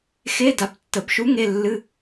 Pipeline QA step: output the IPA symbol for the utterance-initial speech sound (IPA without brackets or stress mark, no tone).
x